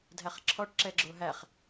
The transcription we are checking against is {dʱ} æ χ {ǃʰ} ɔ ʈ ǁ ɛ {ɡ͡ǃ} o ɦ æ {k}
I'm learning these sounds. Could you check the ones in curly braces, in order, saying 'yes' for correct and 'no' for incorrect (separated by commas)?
yes, no, no, no